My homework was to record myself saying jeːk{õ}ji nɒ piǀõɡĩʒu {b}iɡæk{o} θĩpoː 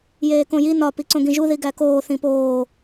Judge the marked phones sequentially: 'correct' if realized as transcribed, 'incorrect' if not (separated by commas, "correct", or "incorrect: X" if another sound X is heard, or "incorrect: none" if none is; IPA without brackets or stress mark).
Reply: correct, incorrect: ð, incorrect: oː